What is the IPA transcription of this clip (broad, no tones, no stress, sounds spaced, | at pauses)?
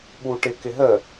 ɓ u ʈ ɪ k ɪ ɦ ə